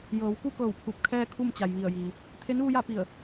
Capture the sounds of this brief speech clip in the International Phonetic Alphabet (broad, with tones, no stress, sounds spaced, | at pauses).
j ɤː˩˧ w k u˥˨ k ɤː˧˩ w pʰ u˧˩ p̚ kʰ ɛː˥˨ kʰ u˥˨ m t͡ɕ a˩ j ʋ i˧˩ ə̯ j iː˩ | t̪ʰ e˧˥ n ʋ u˧ j a˥˨ p i˧˩ ə̯